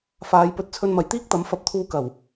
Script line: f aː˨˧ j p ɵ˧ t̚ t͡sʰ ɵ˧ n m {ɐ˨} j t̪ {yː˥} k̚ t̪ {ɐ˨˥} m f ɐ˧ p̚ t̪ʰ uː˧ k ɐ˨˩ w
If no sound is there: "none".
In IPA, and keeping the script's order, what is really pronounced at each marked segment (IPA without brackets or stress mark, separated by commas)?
ɐ˨, iː˥, ɐ˨˥